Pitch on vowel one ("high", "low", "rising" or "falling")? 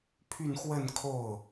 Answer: falling